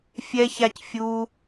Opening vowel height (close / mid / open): mid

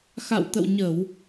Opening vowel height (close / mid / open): open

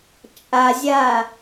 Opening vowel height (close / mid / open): open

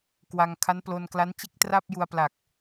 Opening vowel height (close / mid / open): open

